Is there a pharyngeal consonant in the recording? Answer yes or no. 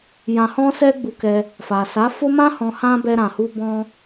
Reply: no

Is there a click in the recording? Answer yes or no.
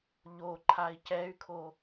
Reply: yes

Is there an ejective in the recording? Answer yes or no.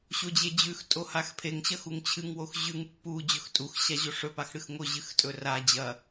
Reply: yes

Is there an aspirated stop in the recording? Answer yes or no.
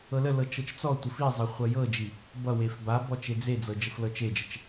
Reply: no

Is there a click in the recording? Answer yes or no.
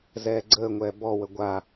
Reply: yes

